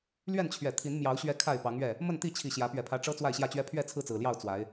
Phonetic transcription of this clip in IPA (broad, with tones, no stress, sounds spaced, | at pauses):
l ɥ ɛ˥˨ n t͡ɕʰ ɥ ɛ˨˩ t̪ʰ i˨˦ n m j ɑ˨˦ ʊ̯ ɕ ɥ ɛ˦ kʰ a˥˨ ɪ̯ p ɑ˨˦ ŋ ɥ ɛ˥˨ | m ə˥˨ n t̪ i˥˨ t͡ɕʰ i˨˩ ɕ j ä˨˦ p ɥ ɛ˨˩ pʰ ä˨˦ ʈ͡ʂ ɤ˦ t͡s w a˥˨ ɪ̯ ɕ j ä˥˨ t͡ɕ ɥ ɛ˦ pʰ ɥ ɛ˥˨ t͡sʰ ɹ̩˥˨ t͡s ɹ̩˨˩ l j ɑ˥˨ ʊ̯ t͡s w a˨˦ ɪ̯